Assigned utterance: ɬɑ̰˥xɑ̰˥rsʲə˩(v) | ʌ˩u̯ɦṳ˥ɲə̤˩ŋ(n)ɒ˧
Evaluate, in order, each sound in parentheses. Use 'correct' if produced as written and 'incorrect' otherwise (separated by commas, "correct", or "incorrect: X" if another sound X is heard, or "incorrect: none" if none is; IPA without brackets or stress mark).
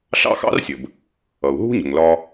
incorrect: b, incorrect: l